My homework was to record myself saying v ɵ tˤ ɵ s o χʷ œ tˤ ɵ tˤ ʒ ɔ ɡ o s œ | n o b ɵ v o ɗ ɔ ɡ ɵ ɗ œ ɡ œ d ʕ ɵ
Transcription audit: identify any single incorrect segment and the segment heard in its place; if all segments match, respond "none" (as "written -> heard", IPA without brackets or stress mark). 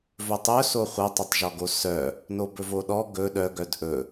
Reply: ʕ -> ʔ